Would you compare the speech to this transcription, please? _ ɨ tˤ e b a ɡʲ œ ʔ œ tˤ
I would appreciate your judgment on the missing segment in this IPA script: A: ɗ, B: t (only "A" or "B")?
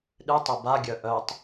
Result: A